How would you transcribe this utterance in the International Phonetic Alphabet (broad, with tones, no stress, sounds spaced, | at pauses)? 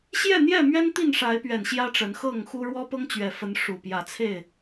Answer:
ɕ j ɛ˥˨ n̪ j ɛ˥˨ m ɥ ɛ˦ n t̪ i˥˨ n ʂ a˨˦ ɪ̯ p ɥ ɛ˨˩ n ɕ j ä˦ ʈ͡ʂ ə˨˦ n x ɤ˥˨ ŋ x u˦ ɻ w ɔ˦ p ɤ˦ ŋ t͡ɕ ɥ ɛ˨˩ f ə˨˦ n ʂ u˨˩ p j ä˨˦ t͡sʰ e˥˨ ɪ̯